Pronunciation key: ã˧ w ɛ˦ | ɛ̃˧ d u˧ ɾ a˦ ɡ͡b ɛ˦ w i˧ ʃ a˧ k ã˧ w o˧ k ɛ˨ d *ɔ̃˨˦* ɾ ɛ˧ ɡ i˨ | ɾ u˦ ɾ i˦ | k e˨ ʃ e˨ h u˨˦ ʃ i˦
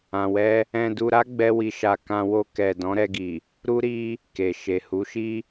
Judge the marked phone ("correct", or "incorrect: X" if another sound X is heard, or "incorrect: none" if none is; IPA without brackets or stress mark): correct